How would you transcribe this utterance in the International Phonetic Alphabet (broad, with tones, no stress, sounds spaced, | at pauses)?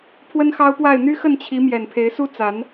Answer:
pʰ w ə˦ n x ɑ˦ ʊ̯ p w a˥˨ ɪ̯ n̪ y˦ x ə˥˨ n t͡ɕʰ i˨˦ m j ɛ˨˩ n pʰ e˨˦ ɪ̯ s u˦ t͡s a˨˦ n